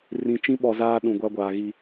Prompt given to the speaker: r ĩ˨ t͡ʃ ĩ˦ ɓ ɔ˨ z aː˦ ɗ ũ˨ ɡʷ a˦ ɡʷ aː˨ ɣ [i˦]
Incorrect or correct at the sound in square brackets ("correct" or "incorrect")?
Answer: correct